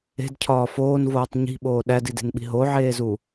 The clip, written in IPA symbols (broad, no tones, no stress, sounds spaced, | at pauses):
e̤ d cʰ ɒː f oː n v oː tˤ ɲ i̤ ɓ oː ɗ æ d i d e̤ n ɓ i̤ ɦ o ʕ eː z u